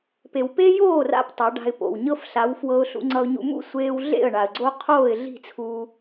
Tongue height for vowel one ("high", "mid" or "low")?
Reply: mid